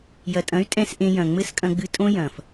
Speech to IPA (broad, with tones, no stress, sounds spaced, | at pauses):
j ɐ˨ tʼ ɐ̃˨˦ y̯ tʼ ɛ̃˦ s ʔ ẽ˧ j ɐ̃˨ ŋ͡m ɘ˦ s kʼ ɐ̃˧ ɡ͡b ɨ˧ tʼ õ˦ j ɐ̃˨ f